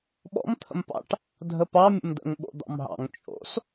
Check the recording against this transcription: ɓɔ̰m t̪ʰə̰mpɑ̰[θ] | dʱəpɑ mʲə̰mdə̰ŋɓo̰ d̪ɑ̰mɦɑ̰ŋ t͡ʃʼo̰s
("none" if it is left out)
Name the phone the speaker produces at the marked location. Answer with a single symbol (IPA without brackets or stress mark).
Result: ʈ